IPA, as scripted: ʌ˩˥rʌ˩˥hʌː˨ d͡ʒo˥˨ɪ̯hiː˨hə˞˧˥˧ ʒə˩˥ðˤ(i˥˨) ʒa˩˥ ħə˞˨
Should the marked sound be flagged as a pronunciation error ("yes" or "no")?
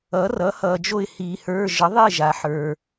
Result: no